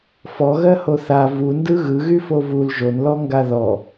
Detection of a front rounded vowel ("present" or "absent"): present